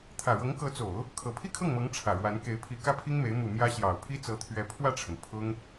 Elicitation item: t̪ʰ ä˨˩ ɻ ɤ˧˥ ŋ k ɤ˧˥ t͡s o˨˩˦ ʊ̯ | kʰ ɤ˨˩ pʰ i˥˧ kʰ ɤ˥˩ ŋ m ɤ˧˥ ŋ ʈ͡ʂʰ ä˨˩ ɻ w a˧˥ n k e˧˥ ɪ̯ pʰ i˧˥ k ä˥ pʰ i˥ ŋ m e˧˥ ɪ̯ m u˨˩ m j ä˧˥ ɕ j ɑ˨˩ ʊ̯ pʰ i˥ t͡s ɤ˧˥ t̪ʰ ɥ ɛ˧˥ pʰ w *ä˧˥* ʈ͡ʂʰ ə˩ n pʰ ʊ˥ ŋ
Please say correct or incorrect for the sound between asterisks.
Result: incorrect: ä˥˩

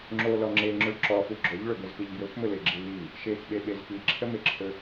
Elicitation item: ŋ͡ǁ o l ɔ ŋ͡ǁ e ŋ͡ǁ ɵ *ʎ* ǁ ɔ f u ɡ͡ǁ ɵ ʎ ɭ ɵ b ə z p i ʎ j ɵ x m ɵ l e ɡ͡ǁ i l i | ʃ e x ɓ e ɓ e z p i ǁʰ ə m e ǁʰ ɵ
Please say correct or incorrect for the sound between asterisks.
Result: incorrect: ɭ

